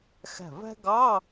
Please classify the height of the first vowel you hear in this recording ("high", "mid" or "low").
low